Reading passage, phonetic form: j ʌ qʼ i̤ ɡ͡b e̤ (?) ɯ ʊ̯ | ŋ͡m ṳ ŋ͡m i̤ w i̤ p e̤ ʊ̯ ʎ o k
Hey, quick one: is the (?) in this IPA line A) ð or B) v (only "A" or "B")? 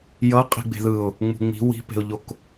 A